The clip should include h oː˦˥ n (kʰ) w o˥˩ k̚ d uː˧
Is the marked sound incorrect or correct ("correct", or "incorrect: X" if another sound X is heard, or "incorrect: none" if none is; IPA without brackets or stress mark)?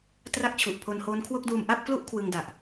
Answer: correct